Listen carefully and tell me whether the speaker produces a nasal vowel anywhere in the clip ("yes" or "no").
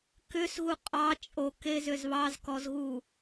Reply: no